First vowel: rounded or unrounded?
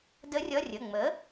unrounded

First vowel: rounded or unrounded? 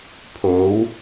rounded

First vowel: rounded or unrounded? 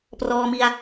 rounded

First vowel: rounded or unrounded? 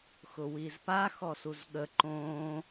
rounded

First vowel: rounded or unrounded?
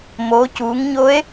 rounded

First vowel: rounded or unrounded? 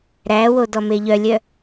unrounded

